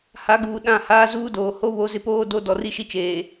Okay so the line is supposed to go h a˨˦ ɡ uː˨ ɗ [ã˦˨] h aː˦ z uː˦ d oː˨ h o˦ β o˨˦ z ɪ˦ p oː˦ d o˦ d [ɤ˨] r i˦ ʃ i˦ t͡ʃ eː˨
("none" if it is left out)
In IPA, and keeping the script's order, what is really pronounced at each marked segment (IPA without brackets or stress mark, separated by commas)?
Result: ã˦˨, ɔ˨